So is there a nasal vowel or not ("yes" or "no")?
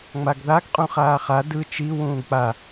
yes